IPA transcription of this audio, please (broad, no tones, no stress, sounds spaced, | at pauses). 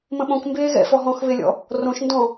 m ə̃ ɓ õ k m b eː ɣ ɛ̰ f ɔ ɦ ɔ̃ x β e lʲ ɔ̰ | r õ ʃ n d ɔ̃